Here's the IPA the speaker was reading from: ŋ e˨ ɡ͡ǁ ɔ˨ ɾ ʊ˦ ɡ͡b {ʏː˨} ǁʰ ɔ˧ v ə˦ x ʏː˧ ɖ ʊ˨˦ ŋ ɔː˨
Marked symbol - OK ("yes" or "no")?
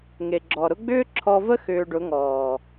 no